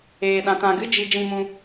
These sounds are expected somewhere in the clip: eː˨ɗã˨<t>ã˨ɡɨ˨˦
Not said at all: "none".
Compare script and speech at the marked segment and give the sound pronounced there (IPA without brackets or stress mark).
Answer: t